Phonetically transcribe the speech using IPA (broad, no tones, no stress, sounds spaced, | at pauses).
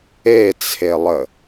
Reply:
e t͡sʰ e lˠ ə